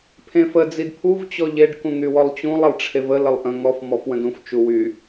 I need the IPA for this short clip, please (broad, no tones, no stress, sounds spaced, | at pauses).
pʰ ẽ f ə d͡z i d pʰ u v t͡ɕ ɔ ʎ e ɖ k ũ ŋ y w ɔ lˠ t͡ɕ ũ lˠ ə lˠ ʈ͡ʂʰ e v ə l ə lˠ ʔ ə̃ ŋ ɔ f m ɔ f w ə̃ d ũ f t͡ʃ u w y